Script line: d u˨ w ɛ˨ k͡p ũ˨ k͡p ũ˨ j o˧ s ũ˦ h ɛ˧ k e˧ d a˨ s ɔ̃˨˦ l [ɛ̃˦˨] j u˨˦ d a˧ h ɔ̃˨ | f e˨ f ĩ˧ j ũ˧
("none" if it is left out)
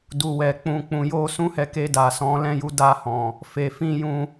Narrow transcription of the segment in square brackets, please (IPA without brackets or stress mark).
ɛ̃˦˨